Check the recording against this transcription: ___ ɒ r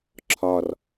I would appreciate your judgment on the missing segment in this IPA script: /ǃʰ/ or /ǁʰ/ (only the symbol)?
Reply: ǁʰ